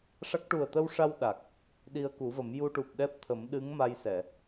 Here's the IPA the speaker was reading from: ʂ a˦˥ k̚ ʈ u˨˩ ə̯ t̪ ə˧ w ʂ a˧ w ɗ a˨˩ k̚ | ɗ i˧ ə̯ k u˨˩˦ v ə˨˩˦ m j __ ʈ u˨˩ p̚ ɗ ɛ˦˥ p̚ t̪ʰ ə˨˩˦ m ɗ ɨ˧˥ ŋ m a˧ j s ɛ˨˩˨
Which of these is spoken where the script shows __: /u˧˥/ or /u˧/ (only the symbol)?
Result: u˧